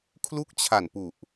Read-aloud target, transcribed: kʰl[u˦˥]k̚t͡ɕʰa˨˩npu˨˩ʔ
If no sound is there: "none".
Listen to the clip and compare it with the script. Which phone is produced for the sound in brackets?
u˦˥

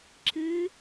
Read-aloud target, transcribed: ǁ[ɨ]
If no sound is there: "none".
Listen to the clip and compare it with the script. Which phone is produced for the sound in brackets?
ɨ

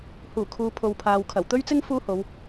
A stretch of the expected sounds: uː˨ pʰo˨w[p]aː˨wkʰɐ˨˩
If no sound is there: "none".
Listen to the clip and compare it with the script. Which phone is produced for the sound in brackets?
pʰ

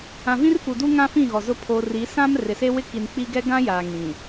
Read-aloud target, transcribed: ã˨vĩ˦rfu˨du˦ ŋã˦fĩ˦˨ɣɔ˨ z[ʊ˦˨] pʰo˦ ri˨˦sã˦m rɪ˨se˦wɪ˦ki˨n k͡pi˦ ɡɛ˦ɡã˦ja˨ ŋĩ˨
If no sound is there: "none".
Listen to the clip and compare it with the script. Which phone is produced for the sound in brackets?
ʊ˦˨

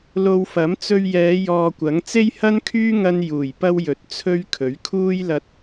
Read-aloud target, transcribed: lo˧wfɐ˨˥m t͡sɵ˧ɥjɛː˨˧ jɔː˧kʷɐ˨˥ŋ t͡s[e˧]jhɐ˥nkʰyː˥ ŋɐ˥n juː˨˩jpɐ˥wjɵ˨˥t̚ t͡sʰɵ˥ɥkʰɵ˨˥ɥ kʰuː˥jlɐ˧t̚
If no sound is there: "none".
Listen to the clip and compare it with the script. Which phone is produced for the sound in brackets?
e˥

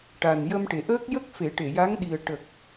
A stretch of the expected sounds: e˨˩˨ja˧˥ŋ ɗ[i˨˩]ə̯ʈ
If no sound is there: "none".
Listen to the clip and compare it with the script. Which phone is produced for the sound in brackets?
i˨˩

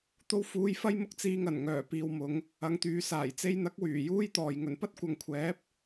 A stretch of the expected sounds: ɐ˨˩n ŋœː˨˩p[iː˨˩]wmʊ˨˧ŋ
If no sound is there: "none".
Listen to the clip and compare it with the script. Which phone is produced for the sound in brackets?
iː˨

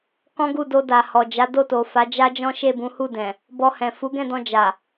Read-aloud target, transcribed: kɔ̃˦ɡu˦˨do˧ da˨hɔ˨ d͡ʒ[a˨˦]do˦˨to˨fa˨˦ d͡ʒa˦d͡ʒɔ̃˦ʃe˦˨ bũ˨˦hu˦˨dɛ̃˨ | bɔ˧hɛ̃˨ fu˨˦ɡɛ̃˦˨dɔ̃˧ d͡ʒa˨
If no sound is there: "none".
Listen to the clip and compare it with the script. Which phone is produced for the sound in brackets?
a˨˦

